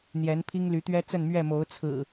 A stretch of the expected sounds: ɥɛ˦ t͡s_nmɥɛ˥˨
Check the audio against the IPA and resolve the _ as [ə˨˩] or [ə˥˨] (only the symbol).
ə˥˨